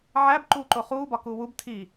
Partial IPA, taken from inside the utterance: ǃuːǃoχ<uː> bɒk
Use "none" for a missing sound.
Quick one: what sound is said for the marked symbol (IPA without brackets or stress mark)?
uː